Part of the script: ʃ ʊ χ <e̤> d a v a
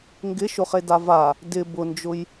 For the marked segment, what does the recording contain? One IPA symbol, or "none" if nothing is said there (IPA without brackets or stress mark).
e